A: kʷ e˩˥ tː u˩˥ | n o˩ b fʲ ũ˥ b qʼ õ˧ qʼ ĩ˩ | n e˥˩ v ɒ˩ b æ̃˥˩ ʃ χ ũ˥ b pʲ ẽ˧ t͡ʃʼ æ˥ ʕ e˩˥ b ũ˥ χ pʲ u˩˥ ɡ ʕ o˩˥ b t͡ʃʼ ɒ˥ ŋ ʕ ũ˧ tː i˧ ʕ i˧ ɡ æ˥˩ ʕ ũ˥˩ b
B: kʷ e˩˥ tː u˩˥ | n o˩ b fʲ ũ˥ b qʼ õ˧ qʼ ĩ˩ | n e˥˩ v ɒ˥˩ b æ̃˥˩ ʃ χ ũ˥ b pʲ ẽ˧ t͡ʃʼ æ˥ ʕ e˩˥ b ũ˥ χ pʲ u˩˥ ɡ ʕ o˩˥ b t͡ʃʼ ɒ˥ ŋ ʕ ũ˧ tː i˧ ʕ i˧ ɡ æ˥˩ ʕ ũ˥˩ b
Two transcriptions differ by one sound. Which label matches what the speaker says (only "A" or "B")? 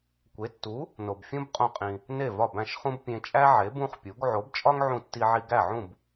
B